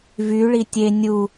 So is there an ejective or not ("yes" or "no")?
no